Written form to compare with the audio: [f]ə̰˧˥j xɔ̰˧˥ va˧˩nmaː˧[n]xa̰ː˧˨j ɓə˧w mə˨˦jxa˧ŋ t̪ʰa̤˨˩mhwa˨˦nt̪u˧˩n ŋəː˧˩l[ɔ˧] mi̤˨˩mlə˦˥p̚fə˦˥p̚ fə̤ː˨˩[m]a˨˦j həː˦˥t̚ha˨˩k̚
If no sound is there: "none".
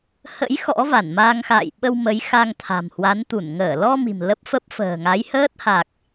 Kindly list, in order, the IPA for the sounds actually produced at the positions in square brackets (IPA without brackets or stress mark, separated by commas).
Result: h, ŋ, ɔ˧, ŋ